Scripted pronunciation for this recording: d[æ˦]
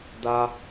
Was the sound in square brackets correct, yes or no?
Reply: no